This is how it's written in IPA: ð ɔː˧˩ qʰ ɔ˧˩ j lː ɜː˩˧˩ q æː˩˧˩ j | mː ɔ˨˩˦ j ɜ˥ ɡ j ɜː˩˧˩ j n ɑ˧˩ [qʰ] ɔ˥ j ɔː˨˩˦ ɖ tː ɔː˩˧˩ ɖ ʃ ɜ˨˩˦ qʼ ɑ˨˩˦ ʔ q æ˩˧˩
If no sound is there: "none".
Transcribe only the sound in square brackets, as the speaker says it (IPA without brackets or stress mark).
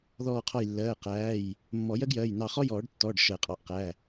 χ